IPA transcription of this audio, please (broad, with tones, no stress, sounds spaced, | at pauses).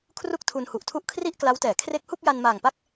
kʰ r u˥˩ k̚ tʰ u˧ n h u˨˩ ʔ tʰ u˥˩ ʔ kʰ r i˥˩ ʔ k l a˦˥ w t ɛː˩˦ kʰ r e˦˥ k̚ h u˥˩ k̚ j a˧ n m aː˨˩ ŋ p a˥˩ k̚